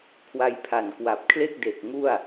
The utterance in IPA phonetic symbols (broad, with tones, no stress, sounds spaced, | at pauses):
kʰ w a˧ j pʰ a˨˩ n k w a˨˩ p̚ kʰ l e˥˩ k̚ d e˨˩ k̚ ŋ u˥˩ a̯